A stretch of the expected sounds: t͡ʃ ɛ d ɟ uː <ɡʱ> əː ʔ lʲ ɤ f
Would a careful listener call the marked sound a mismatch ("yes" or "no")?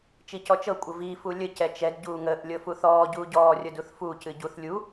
yes